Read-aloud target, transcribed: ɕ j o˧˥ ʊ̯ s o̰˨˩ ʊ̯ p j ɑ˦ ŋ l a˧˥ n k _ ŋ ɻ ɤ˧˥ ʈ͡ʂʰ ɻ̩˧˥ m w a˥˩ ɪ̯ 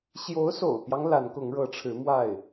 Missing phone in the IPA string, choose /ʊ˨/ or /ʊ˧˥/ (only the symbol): ʊ˧˥